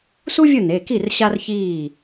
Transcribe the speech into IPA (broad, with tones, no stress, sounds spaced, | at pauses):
s u˥ vʲ ʊ˥˩ n e˩˧˩ k i˥˩ r ɕ a˥ r ç iː˥˩